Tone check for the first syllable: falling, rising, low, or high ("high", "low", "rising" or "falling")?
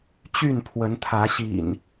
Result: falling